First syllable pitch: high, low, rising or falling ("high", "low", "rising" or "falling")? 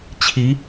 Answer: rising